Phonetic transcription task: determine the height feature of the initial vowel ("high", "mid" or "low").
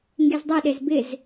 mid